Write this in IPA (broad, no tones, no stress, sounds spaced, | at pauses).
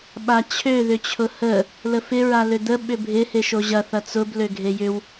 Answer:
ɓ a t͡ɕʰ ø ð ʏ t͡ɕʰ ʊ h ə | l ə f ɪ ɹ a l ø d̪ ə ɓ ʏ bʱ ɪ h e ʃ o ʑ ɐ θ ɐ t͡s ʊ b l ø ɡʱ e j ʏ w